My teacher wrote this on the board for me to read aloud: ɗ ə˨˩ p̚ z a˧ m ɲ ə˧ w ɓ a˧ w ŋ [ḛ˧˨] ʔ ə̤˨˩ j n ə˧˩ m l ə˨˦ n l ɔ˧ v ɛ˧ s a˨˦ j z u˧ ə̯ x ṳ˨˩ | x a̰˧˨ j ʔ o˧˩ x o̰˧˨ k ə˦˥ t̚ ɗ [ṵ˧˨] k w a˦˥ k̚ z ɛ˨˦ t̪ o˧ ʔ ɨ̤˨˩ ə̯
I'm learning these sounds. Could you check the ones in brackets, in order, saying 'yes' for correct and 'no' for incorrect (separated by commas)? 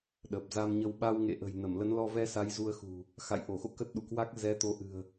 yes, yes